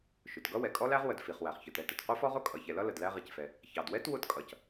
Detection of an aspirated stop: absent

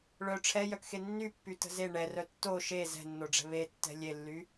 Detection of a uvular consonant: absent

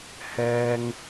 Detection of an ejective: absent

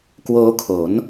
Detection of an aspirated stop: present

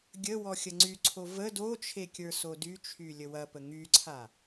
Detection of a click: present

